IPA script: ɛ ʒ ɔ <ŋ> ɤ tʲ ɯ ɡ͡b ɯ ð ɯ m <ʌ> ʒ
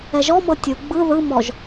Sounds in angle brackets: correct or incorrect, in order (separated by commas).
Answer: incorrect, incorrect